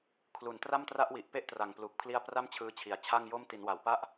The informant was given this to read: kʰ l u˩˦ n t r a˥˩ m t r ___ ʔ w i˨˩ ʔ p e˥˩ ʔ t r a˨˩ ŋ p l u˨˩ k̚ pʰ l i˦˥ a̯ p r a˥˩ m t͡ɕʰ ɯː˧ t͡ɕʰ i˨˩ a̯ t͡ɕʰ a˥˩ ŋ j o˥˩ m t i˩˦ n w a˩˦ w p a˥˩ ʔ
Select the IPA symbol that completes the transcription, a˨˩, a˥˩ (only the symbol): a˥˩